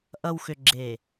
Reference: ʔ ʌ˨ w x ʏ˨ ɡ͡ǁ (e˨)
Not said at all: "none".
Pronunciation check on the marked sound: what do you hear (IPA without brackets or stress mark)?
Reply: e˨